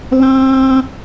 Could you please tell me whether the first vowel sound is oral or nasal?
nasal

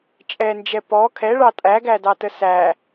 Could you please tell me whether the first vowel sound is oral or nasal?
oral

